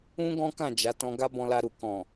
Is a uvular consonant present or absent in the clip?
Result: absent